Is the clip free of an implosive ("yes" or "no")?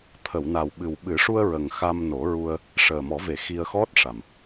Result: no